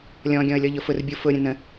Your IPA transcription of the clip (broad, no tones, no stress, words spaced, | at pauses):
lʲɔ̃ɡʲɔ̃ə̯lʲɔʎʊ fʊrbʲu fʊɾʲə̃ nə̃